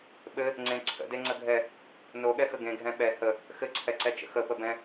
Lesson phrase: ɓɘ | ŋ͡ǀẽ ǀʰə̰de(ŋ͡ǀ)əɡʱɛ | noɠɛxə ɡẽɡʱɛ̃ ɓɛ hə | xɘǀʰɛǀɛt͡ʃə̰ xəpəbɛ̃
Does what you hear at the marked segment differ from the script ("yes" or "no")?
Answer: no